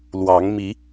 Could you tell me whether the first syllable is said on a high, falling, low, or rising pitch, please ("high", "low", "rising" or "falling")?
rising